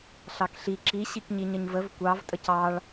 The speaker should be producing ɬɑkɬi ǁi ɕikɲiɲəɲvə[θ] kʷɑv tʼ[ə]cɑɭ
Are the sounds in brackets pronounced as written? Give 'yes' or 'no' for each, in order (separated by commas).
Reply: no, yes